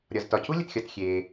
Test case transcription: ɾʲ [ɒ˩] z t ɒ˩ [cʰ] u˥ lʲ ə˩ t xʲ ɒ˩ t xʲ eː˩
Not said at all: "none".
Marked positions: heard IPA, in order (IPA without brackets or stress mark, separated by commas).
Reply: ɒ˩, cʰ